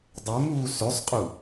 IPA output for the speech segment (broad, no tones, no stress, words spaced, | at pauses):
dˤemuː søsˤqʼu